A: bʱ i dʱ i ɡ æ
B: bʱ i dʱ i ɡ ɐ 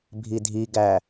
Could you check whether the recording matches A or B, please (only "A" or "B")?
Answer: A